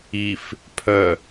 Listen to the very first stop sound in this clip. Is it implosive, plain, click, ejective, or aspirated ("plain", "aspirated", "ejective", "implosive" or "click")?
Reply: aspirated